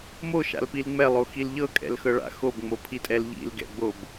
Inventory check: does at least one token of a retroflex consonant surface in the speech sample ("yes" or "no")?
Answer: yes